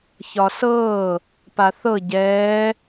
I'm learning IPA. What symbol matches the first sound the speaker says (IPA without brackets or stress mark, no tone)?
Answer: ç